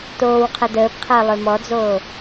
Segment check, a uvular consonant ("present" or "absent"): present